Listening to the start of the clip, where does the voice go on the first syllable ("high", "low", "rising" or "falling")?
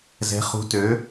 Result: rising